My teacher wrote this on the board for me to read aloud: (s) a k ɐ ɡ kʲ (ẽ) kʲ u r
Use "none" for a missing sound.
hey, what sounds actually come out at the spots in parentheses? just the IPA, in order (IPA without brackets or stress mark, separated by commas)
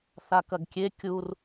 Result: θ, e